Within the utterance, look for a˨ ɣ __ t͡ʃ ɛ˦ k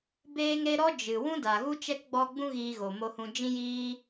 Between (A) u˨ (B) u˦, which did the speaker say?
B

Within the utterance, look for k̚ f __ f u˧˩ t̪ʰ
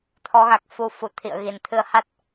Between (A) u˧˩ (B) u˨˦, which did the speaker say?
B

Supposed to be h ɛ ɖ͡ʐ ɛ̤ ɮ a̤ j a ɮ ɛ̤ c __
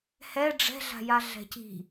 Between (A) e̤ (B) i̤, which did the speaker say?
B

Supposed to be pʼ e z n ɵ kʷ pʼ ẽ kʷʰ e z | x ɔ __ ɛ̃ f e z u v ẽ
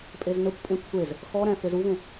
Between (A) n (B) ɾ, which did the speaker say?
B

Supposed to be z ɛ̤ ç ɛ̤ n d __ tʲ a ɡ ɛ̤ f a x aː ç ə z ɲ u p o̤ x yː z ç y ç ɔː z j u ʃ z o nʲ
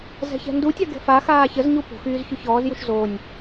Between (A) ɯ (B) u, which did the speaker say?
B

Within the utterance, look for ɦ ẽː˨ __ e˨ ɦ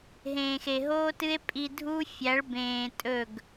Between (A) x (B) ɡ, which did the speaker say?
A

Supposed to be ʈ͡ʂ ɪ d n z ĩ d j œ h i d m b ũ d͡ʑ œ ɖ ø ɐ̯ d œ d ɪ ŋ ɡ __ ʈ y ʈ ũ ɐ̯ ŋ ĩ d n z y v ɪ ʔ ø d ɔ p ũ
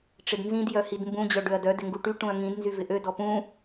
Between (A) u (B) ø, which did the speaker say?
A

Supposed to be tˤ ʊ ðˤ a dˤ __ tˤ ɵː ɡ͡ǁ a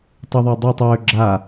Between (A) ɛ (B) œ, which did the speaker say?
A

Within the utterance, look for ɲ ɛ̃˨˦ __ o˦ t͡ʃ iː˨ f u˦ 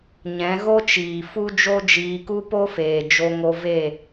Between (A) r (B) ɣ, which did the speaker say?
B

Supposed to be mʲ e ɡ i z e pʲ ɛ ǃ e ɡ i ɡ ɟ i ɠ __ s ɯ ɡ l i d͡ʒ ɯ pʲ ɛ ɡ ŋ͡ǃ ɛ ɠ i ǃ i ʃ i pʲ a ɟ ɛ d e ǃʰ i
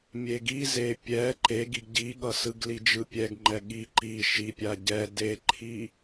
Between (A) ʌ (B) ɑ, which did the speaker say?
A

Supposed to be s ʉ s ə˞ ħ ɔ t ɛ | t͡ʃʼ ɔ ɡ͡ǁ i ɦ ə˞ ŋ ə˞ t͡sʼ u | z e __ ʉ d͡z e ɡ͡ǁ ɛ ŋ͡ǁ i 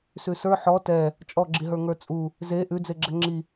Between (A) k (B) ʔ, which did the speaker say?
B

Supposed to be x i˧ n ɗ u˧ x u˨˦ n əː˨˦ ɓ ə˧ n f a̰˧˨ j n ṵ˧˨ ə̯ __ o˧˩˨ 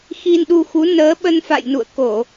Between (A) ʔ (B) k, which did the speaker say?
B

